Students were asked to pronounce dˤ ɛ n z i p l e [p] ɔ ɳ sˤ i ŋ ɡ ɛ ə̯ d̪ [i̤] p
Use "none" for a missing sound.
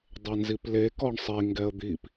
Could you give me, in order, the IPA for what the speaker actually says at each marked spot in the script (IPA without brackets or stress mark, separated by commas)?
k, i